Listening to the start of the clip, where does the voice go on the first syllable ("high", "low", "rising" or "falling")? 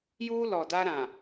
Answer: high